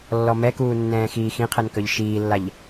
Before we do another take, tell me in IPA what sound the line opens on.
lː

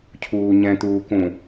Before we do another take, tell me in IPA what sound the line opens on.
cʰ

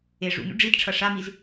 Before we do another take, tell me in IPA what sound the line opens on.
e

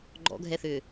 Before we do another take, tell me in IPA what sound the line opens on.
ɡ͡ǃ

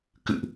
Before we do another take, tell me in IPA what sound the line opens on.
k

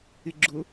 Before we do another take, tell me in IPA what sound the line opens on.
ɪ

